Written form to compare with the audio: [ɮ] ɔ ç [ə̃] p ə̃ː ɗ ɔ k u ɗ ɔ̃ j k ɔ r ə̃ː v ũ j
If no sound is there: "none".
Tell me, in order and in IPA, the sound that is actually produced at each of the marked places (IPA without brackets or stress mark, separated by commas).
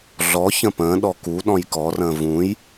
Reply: ɮ, ə̃